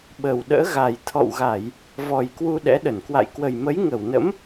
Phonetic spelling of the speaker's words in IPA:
ɓ ə˨˩ w ɗ ə̰ː˧˥ ɣ a˨˩ j t̪ʰ ɔ̰˧˨ w ɣ a˧˩˨ j | v ɔ˨˩ j k w u˧ ɗ ɛ̰˧˥ ɗ ə˧˩ n k w a̰˧˨ j k w ə˨˩ j m ə˨˦ j ŋ ə˧˩ w n ə̰˧˥ m

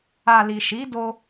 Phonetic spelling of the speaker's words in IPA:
a˨ l i˨ ʃ i˨˦ d o˧

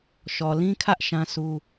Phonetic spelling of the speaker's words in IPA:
ʃ ɔ˨ l ĩ˦ kʰ ä˦ ʔ ʃ ã˦ s u˦

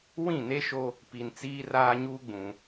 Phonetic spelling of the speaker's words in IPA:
w ĩ˦˨ n e˦ ʃ o˦ | p i˨ n t͡s iː˦ r aː˦ ɲ uː˦ ɡ͡b ũ˨

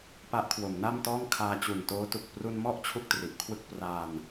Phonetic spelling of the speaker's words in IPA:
p a˦˥ ʔ kʰ w o˩˦ m n a˥˩ m t ɔː˥˩ ŋ kʰ aː˧ t͡ɕ u˨˩ n t oː˦˥ t u˨˩ k̚ p r u˧ n m ɔ˥˩ ʔ t͡ɕʰ u˥˩ k̚ t r i˨˩ ʔ kʰ w ɯ˥˩ k̚ p r a˧ n

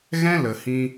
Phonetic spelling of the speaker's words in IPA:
ɣ ɛ̃˦ l ə˨ h ĩ˧

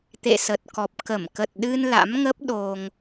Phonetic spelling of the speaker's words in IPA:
t̪ ḛ˧˨ s ə˨˩ t̚ k ɔ˨˩ p̚ k ə˧˩ m k ə˨˩ t̚ ɗ ɨ˧ n l a̰˧˥ m ŋ ə˦˥ p̚ ɗ o˧ ŋ

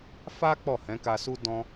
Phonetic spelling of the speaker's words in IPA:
f a˦ k͡p ɔ˦˨ h ɛ̃˨˦ k a˧ s u˦ d ɔ̃˧

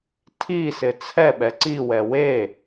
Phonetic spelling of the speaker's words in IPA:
tʰ i s ɪ t͡sʰ ɛ ɓ ɛ ǀ i w ɛ w e

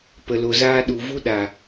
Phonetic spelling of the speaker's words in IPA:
p ə˨ l o˨ z aː˧ ɗ u˨ v u˧ ɗ a˨

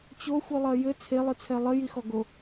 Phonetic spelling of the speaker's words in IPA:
t͡ɕ o xʷ ɨ lˠ ɐ j ɘ t͡sʰ e lˠ ɨ t͡sʰ ɛ lˠ ɘ j i x ɔ ɡ o

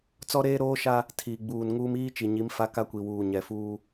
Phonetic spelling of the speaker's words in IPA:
t͡s ɔ˦ ɾ eː˦ ɾ oː˦ ʃ a˦ | tʰ iː˨ ɡ͡b uː˨ n ŋ uː˦ m iː˦ t͡ʃ i˨ ɲ i˨˦ m f a˦ k a˦ kʷ i˨ w uː˨ ɲ ɛ˨ f uː˦

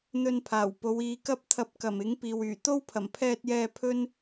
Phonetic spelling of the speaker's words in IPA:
n̪ ɵ˧ n pʰ aː˨˩ w p o˨˧ w iː˨˧ k ɐ˥ p̚ t̪ʰ ɐ˧ p̚ k ɐ˨˩ m ɪ˨˥ ŋ p iː˨ w yː˨˩ t̪ o˥ w pʰ ɐ˨˩ m pʰ ɛː˧ t̚ j ɛː˧ pʰ ɵ˥ n

